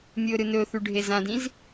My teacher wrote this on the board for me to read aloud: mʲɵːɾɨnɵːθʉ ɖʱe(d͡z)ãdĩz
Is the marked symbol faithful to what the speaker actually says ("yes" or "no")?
no